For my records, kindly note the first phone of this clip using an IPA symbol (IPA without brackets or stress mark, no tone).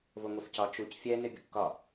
v